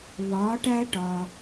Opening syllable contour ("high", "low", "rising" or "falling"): rising